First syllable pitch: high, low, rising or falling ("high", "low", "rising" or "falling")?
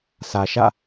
low